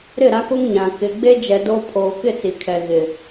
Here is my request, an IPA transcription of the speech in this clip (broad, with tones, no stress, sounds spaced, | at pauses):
ɾ ɪ˦˨ ɾ a˦ k o˦ ŋ ɲ ã˨ k ɪ˨ ɡ͡b e˦ d͡ʒ ɛ˨ d o˦ pʰ oː˨ k ɪ˦˨ t͡s i˨ kʰ ɛ˨ ɣ ɪ˨